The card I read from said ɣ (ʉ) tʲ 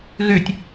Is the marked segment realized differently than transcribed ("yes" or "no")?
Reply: no